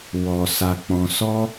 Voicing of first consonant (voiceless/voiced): voiced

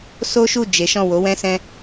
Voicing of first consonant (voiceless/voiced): voiceless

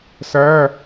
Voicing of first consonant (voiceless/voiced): voiceless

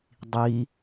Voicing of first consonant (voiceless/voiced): voiced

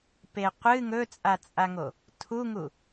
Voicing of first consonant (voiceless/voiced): voiceless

